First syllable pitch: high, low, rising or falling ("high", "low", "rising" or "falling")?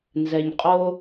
low